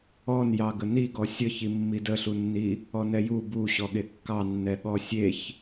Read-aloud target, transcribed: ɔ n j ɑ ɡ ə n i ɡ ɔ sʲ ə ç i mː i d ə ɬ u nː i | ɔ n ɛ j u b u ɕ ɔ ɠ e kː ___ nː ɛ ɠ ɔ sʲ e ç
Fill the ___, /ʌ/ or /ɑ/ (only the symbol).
ɑ